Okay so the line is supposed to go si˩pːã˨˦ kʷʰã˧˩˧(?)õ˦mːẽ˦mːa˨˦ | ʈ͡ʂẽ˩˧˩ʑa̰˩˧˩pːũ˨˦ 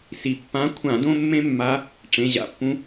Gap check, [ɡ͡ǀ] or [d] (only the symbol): d